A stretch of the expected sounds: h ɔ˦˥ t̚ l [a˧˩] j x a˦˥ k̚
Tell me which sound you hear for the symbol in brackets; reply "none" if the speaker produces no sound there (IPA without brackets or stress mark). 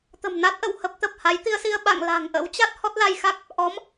a˧